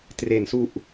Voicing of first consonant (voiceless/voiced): voiceless